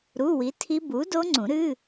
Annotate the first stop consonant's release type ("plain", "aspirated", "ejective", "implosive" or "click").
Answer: aspirated